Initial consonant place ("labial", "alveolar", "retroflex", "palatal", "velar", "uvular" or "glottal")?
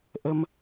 glottal